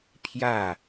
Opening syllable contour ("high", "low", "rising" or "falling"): falling